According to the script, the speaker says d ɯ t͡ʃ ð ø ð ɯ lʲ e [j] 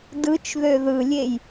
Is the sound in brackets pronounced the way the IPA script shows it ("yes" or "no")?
yes